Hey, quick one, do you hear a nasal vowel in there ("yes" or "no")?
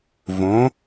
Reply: yes